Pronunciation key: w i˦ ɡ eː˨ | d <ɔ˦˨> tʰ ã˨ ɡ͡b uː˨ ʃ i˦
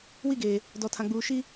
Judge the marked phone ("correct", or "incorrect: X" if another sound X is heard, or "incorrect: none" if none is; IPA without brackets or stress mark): incorrect: ɔ˨